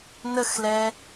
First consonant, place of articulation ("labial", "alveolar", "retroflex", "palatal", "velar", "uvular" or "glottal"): alveolar